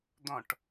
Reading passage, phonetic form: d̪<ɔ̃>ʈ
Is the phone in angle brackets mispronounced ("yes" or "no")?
no